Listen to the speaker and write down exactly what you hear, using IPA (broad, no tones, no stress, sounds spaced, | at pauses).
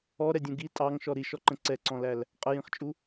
ɔ ɾ ɛ dʲ ũ ɡ i tʼ ɑ ŋ ʃ ɔ ɾ i ʃ ɔ ǃ ə̃ ǀ ɛ ǀ ɔ̃ l æ l | qʼ ə j ĩ χ t͡ʃʼ u